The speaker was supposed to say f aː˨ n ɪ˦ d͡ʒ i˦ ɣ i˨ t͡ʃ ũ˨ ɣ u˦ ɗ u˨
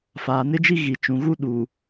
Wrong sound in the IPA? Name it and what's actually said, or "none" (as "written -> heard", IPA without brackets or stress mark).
none